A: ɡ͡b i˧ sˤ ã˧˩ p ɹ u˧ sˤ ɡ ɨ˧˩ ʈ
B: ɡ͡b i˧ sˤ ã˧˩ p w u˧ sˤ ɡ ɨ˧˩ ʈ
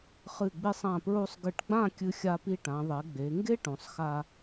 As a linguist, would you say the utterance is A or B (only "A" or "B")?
A